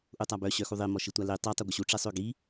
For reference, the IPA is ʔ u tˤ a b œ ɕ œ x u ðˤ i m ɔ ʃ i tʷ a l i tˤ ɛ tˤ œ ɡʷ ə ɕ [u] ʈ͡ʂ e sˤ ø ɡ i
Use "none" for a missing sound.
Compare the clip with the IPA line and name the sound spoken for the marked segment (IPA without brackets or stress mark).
u